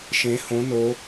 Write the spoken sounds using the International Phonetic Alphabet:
ʃ ẽ h õ n o

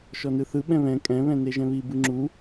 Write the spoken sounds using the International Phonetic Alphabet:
ʃ ɔ n ɯ θ ɯ ɓ ɛ̃ β ɛ̃ kʼ ɛ̃ β ɛ̃ n e ʒ ɛ̃ β i b ɯ ŋ͡ǁ u

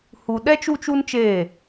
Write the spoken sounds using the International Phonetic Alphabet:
h u˨ ɗ ɛ˦ t͡ʃ u˦ t͡ʃ u˦ n t͡ʃ eː˦˨

